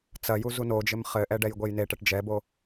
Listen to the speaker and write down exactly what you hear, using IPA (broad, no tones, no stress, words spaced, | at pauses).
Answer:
t͡sɐju zunod͡ʒɘm χɘʔɛ ɖɛjɡʷejneʈɛʈ d͡ʒɛbo